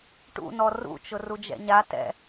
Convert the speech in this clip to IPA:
ʈ ṵ n ɔ r ṵ t͡ʃ ʊ r u d͡ʒ ɛ̰ ɲ a t ɛ̰

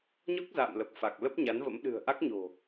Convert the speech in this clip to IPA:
ɲ ɔ˦˥ k̚ z a̰ː˧˨ m l ə˨˩ p̚ f a˨˩ k̚ l ə˦˥ p̚ ɲ a˨˦ n v ə̰˧˥ m ɗ ɨ̤˨˩ ə̯ ʔ a˦˥ k̚ ɲ o̤˨˩

